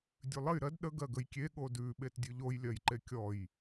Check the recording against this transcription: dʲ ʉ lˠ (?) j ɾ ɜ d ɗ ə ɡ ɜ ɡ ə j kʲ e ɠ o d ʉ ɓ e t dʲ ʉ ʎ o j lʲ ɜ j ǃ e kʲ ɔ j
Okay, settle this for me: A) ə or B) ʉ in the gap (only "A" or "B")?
A